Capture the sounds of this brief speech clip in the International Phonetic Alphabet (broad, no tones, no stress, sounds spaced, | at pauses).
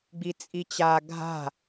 ɡ͡b i t͡sʼ i t͡ɕ a ɡʱ a̤